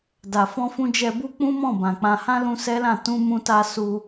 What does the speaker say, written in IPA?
d a˨ f ɔ̃˧ f ũ˧ d͡ʒ ɛ˧ b u˦ k͡p ũ˦ m ɔ̃˦˨ b ã˨ k͡p ã˧ h ã˦ l ũ˧ s ɛ˦ l ã˦˨ t ũ˧ m ũ˧ t a˧ s u˧

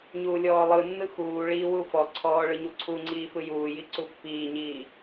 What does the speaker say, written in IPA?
ɲ uː lʲ ɔː lˠ ɯ nː ɯ x uː ɭ iː w u f ɔ ǀʰ ɔː ɭ ɯ ɲ u ǀʰ u ŋ͡ǀ iː f ɯ j uː j i ǀ u pː iː ɲ iː

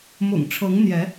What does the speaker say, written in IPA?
m ʊ̰˨˩ ŋ ʈ͡ʂʰ ɤ˨˦ ŋ n̪ j ɛ˨˦

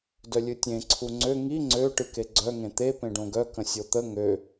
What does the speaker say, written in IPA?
d œ lʲ ɨ tʲ ẽ ǀʰ u ŋ͡ǀ ø ŋ i ŋ͡ǀ ø ʈ ɨ k e ɡ͡ǀ œ ŋ ẽ t̪ e p ẽ ɖ õ ɡ œ k ə̃ sʲ o t̪ ə ŋ ø

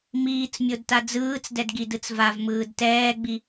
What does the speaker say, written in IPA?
m iː t͡s mʲ o d t a d͡z ɯː t͡s d ɛ d ɡ i d ɯ t͡s v a v m ɯː d t ɛː ɡ͡b i

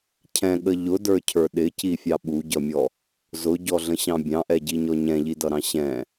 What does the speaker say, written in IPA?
cʰ ɛ̃ ɠ ə ʎ ʊ d ə˞ cʰ ə˞ ɗ ɪ c i fʲ ɑ ɓ u ɟ ʌ mʲ ɔ | z ʊ ɟ ɔ ɮ ə̃ ɕ ɑ̃ bʲ ɑ̃ ʔ ɛ ɟ i ɲ ɔ ɲ ɛ̃ ʎ i d ʌ ɾ ɑ̃ ɕ ɛ̃

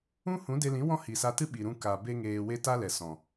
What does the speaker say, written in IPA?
ũ˦ h ũ˨˦ d e˧ l ĩ˨˦ w ɔ̃˦ h i˨ s a˧ t ɨ˦ ɓ i˨ ɾ ũ˧ k a˨ b e˦ ŋ eː˧ w e˦ t a˦ l ɛ˨ s ɔ̃˨

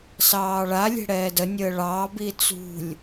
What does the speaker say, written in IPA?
s ɑː ɭ a lʲ ɛ̤ ɽ ɛː d ə nʲ əː ɭ ɑ b i t͡s ṳ lʲ

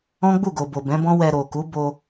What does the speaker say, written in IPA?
ɔ̃˦ ɡ͡b u˦˨ ɡ o˨ b o˨ b ɛ̃˨˦ b ɔ̃˦ w ɛ˧ ɾ o˨ k u˨˦ b o˧

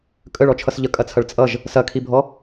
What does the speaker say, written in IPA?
kʼ ə ɭ ɔ t͡ʃʰ ʌ s ʎ ə kʼ ɐ t͡sʰ ɐ ɭ t͡sʼ ʌ ʒ | s ɐ kʰ i bʱ ɔ

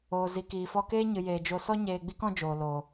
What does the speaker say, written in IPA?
oː˨ z i˨ k iː˨ f ɔ˧ k eː˦ ɲ ɨ˨ j eː˨ d͡ʒ o˧ s ɔ˦ ɲ eː˧ ɡ͡b i˦ k ɔ̃˦ d͡ʒ oː˨ l oː˨

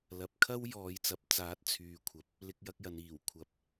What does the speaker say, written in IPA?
l ɐ˨ p̚ kʰ ɐ˥ w j ɔː˨ j t͡s ɐ˨˥ p̚ t͡s aː˨˥ t̚ t͡sʰ yː˨˧ kʷʰ ɐ˨ p̚ | l ɪ˧ k̚ j ɐ˧ k̚ j ɐ˨ n iː˨˩ w kʷʰ ɐ˨˥ p̚

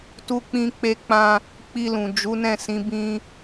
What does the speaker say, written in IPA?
t u˧ k͡p ĩ˧ k͡p e˧ k͡p ã˧ | k͡p i˧ l ũ˨ d͡ʒ u˨˦ n ɛ̃˦˨ s ĩ˨˦ b ĩ˧

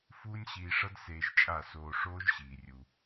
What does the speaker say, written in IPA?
f uː˦ nʲ ɕ iː˧ ʂ ʌ˦ d s eː˧ ʒ t͡ʃʼ a˦˨ s oː˧ ʂ oː˦ ʒ ɕ iː˨ rʲ u˧

